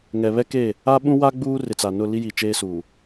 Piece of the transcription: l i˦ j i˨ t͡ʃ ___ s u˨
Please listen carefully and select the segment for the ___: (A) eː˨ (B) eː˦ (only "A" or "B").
B